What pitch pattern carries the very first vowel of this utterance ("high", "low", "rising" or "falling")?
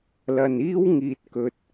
low